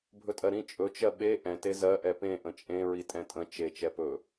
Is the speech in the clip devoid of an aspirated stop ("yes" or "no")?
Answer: yes